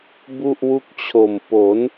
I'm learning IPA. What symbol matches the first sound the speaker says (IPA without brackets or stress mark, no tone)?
b